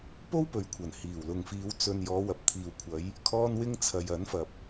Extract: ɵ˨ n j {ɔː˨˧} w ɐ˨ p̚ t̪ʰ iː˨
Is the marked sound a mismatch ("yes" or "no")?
no